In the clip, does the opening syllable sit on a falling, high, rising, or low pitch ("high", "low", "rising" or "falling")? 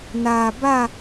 low